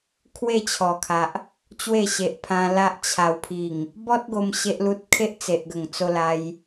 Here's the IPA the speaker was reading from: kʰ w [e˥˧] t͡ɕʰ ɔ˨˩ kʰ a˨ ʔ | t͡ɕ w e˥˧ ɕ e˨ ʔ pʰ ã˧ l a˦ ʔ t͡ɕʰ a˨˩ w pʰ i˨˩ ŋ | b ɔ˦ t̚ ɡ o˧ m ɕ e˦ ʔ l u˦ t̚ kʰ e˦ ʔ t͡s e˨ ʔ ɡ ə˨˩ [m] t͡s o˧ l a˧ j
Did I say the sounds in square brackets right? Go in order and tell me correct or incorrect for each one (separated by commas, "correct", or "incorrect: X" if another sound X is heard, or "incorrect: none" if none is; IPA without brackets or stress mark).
correct, incorrect: ŋ